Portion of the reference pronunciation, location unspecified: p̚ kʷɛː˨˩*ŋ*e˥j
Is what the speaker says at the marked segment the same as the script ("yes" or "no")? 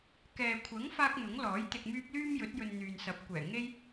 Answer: yes